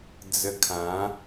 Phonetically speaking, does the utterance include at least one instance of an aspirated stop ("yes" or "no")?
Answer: yes